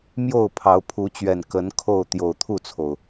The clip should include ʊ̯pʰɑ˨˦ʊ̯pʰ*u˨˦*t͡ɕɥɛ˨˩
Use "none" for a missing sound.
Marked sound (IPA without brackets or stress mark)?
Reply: u˨˦